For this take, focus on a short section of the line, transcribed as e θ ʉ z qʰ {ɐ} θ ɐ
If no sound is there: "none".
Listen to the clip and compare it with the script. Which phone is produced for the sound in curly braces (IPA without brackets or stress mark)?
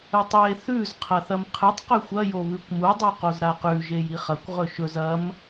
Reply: ɐ